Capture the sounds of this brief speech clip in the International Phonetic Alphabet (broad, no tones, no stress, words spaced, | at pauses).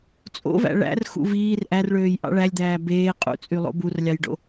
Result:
t͡sʼo̰væ̰ ɭæ̰r xṵviːr ʔærɭøːj ʔɑ̰ɭælʲd̪æː beː qʼṵt͡sʼy lˠo̰burlʲɑjɖo̰